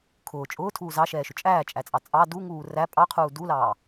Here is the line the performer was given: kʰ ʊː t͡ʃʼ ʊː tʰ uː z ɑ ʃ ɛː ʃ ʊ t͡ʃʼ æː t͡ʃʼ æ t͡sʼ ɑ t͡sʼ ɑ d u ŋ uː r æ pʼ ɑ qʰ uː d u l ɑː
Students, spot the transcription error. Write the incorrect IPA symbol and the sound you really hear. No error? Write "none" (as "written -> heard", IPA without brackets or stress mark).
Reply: none